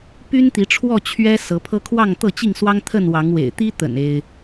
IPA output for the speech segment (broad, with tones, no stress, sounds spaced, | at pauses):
p y˦ n t̪ i˨˦ ʈ͡ʂʰ w ɔ˥˨ t͡ɕʰ ɥ ɛ˦ s ɤ˨˦ pʰ ɤ˦ kʰ w ɑ˥˨ ŋ t̪ ɤ˥˨ t͡ɕ i˥˨ ŋ s w ɑ˦ ŋ t̪ʰ ə˥˨ n w ɑ˨˦ ŋ w ḛ˨˩ ɪ̯ t̪ i˦ t̪ ə̰˨˩ n e˦ ɪ̯